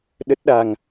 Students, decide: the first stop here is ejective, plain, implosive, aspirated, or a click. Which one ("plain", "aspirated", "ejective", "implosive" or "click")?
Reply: implosive